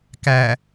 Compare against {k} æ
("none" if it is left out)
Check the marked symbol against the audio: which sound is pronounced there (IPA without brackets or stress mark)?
k